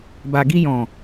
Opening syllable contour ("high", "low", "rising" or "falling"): low